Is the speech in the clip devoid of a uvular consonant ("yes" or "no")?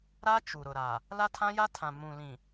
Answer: yes